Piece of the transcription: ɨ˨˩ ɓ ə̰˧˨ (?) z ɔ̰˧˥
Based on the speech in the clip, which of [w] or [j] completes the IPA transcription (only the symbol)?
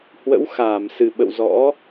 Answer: w